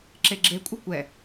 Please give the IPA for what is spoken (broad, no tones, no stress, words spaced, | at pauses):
ǁeɡ͡ǁe kʷʼɘkʷɛ